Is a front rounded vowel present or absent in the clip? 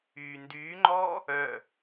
present